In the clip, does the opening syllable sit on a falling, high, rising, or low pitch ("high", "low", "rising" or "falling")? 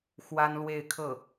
high